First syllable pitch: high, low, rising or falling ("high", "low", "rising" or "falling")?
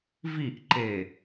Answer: falling